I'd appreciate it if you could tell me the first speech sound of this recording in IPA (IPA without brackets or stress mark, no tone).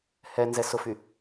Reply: h